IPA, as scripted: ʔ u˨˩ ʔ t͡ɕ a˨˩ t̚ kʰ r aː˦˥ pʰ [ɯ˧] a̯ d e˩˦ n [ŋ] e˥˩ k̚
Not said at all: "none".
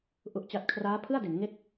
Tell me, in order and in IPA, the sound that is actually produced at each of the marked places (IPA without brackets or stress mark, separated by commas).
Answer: ɯ˥˩, ŋ